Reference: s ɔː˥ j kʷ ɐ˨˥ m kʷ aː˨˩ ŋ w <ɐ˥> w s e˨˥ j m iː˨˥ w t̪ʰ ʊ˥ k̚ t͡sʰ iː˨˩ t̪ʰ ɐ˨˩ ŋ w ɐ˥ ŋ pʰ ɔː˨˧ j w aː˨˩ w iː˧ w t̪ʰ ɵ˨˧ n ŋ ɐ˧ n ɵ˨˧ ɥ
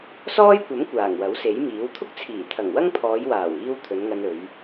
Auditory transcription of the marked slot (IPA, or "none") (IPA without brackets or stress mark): ɐ˨˥